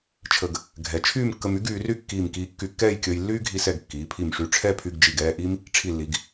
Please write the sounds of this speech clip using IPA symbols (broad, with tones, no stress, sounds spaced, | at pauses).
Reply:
t͡ʃʰ ə˧ ɡ | ɡʱ ɛ˩˧ t͡ʃʰ yː˥˧ m kː ə˧ m y˥ ɡ yː˩˧ r y˥˧ kː iː˧˩ m k iː˧ kː y˧ kː ɛː˥˧ j kʲ əː˧ j lː yː˥ ɡʱ i˧ s ɛ˧˩ ɡ kː iː˩˧ pʰ i˧˩ m ʂ y˧˩ ʈ͡ʂʰ ɛ˥˧ pʰ y˧ ɡ d͡ʒ i˧˩ ɡ ɛː˥˧ ʔ i˥ m | ʈ͡ʂʰ i˧˩ lː i˩˧ ɡ